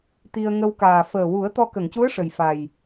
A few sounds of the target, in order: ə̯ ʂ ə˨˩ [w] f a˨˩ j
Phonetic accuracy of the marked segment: incorrect: j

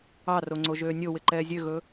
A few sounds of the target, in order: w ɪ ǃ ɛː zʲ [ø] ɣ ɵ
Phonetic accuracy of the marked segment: correct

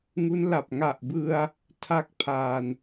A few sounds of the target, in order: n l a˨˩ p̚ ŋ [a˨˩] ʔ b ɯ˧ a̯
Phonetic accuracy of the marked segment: correct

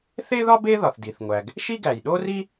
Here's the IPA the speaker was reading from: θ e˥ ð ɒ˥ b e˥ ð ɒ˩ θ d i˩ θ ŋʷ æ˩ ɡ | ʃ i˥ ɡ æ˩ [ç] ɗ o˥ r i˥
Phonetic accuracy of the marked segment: incorrect: j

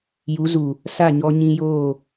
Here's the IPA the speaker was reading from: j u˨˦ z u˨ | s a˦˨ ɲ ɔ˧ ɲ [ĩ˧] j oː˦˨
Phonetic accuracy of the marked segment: correct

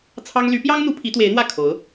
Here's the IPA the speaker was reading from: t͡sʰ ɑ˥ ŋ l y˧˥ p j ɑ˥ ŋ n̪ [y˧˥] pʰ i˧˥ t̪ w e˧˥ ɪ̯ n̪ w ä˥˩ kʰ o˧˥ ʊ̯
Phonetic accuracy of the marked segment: incorrect: u˧˥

